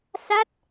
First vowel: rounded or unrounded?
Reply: unrounded